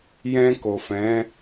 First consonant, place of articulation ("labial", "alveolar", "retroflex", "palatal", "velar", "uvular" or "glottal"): palatal